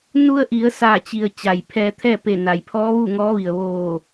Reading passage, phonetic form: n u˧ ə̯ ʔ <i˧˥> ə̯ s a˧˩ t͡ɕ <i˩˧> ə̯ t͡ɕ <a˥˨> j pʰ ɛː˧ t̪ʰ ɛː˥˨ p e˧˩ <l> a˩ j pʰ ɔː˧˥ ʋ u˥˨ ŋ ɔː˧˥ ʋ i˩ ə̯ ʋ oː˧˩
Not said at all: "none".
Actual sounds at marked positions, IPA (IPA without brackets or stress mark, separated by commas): i˩˧, i˩, a˩, n